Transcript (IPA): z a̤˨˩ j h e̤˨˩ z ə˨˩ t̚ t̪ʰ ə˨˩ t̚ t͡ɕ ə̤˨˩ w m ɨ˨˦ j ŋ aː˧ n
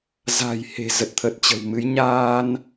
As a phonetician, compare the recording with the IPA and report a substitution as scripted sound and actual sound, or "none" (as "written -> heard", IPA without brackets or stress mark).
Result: ŋ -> ɲ